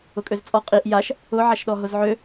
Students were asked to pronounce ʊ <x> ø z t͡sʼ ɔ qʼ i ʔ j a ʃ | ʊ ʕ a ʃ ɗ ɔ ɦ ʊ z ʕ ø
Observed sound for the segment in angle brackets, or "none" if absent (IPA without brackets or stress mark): kʼ